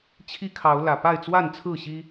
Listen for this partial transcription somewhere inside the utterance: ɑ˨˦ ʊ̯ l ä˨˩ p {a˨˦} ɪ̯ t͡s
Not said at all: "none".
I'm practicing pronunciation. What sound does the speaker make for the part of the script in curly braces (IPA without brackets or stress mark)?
a˥˨